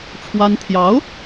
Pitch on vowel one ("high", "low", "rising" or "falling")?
high